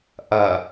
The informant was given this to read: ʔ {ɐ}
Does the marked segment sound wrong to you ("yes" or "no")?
no